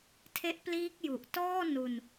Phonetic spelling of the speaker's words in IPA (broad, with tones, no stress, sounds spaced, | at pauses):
tʰ e˦˥ ʔ p l iː˦˥ k̚ j u˨˩ ʔ t ɔː˥˩ n u˧ n